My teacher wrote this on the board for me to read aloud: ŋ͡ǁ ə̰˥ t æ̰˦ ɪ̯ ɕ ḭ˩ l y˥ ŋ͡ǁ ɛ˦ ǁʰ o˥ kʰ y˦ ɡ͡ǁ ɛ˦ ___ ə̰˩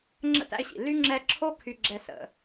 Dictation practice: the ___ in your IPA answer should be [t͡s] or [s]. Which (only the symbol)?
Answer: s